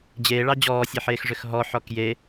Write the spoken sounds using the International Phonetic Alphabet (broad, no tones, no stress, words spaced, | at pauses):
d͡ʑeːɭɑ d͡ʑɔːsʲeħeːxʐʏx ɦɔħɔ kje